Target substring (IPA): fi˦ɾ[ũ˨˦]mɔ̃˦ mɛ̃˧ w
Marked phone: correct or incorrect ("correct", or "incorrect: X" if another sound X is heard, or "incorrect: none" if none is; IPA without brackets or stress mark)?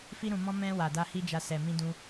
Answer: incorrect: ũ˧